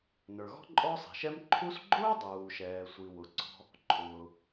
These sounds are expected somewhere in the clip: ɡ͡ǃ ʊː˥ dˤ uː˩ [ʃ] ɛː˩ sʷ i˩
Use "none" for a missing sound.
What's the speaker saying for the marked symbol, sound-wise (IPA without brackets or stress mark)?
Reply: ʃ